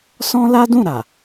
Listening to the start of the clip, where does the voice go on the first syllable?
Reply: high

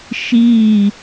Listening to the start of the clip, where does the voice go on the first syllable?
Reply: falling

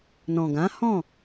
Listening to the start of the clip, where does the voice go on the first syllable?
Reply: low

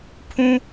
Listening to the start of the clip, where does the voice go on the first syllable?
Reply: high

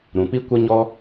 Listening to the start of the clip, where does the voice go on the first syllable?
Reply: low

